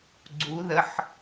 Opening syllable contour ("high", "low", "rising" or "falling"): rising